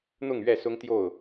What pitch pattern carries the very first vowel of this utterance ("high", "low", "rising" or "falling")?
falling